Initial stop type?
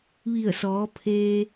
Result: aspirated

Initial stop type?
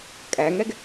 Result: ejective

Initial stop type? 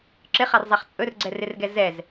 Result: click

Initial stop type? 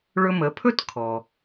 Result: aspirated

